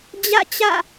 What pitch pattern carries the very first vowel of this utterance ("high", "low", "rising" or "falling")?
falling